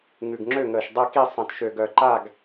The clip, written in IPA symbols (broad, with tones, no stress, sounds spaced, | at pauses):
ŋ ʉ˨˩ ɡ ŋ͡ǁ ø˥˨ ŋ əː˨˩ ʃ dˤ ɛ˥˨ k i˥˨ sˤ ɐ̃˨˩ t ʃ ø˨˩ ɡ œ˨˩ ǃ a˥˨ ɡ